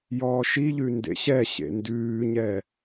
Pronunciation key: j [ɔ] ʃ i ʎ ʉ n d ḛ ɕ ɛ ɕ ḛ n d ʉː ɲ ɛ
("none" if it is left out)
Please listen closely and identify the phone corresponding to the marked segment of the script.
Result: ɔː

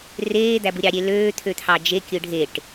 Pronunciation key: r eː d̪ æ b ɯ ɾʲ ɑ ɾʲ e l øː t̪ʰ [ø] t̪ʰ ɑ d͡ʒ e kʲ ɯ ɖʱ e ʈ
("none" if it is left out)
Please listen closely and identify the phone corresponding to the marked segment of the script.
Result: ø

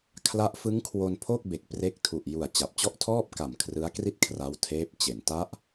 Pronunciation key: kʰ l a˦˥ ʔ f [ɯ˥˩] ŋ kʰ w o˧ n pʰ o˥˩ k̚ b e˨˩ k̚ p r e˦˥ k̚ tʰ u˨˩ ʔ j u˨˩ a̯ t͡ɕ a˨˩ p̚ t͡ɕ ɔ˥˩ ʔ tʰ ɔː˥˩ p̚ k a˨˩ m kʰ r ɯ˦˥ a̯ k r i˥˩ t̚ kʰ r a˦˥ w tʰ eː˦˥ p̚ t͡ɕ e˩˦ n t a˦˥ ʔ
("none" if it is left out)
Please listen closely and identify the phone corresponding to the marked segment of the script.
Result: ɯ˦˥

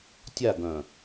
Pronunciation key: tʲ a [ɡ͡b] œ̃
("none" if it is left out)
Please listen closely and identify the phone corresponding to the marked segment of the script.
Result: ɡ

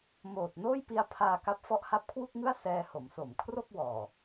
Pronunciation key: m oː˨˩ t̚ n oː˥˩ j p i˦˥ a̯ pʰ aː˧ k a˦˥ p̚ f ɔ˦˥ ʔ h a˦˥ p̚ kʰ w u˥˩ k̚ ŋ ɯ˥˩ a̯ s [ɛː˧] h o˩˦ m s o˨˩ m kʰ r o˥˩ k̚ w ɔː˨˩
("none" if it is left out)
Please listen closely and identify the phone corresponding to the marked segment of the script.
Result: ɛː˧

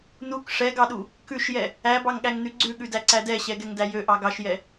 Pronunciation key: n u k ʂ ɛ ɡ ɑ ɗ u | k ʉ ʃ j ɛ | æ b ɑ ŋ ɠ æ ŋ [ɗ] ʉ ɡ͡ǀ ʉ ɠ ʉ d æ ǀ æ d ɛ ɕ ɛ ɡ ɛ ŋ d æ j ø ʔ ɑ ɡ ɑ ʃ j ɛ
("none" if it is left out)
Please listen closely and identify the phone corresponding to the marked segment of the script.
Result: n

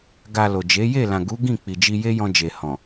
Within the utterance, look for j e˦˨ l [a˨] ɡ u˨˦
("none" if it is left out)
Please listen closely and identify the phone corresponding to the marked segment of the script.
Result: ã˨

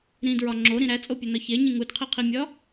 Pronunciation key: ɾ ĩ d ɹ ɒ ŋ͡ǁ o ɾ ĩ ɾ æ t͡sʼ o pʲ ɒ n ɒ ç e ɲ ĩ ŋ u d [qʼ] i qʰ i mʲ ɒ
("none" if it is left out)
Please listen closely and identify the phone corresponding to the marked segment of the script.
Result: qʰ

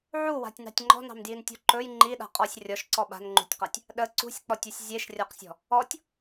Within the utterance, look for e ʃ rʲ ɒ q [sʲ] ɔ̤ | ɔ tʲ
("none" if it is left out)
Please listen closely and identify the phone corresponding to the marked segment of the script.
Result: sʲ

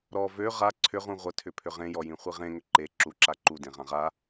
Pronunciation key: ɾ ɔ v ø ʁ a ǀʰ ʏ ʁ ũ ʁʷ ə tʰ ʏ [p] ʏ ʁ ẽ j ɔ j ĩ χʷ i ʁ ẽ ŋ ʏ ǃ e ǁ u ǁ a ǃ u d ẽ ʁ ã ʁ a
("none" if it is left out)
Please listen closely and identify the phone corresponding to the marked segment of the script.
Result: pʰ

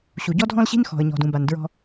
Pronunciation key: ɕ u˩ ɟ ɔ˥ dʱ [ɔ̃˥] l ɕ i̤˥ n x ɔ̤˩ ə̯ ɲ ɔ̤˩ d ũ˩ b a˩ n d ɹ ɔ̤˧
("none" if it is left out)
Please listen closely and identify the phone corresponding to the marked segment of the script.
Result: ɔ̃˥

